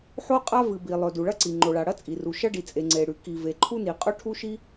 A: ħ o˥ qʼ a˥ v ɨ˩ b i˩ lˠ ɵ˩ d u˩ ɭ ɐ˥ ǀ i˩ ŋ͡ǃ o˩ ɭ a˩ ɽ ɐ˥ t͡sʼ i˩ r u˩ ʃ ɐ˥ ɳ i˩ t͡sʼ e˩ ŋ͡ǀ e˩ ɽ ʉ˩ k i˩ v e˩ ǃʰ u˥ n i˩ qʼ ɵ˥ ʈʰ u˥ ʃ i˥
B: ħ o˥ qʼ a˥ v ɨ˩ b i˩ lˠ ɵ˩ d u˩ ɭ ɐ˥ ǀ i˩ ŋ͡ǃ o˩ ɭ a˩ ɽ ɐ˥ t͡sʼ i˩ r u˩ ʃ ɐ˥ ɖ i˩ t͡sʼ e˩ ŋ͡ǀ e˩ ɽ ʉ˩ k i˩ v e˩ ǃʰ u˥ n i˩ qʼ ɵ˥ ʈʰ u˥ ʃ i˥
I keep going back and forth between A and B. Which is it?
B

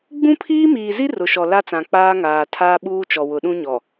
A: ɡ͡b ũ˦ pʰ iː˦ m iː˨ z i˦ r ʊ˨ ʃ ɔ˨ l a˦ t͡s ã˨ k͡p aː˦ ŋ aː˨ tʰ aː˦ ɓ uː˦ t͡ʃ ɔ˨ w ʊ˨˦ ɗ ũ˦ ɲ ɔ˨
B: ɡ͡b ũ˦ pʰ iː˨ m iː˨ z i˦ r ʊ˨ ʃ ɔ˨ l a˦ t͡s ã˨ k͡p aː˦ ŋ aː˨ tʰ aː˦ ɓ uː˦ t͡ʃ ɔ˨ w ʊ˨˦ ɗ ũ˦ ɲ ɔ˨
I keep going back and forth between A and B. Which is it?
A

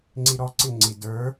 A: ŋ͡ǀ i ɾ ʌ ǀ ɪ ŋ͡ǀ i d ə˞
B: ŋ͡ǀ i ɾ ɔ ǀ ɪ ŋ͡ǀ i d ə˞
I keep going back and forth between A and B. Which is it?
B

